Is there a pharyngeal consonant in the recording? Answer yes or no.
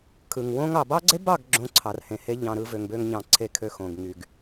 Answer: no